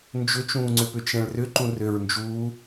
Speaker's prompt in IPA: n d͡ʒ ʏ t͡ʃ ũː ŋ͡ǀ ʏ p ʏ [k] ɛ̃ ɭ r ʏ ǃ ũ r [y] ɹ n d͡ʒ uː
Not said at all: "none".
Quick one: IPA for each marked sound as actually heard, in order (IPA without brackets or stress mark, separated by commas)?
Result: t͡ʃ, ʏ